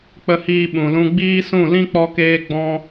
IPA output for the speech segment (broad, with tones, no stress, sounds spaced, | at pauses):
k͡p ə˦ h iː˧ ɓ ũ˨ l ũ˧ ɡ͡b iː˦ s ũ˦˨ l ĩ˦ k͡p ɔ˧ k eː˧ ɡ͡b ɔ̃˧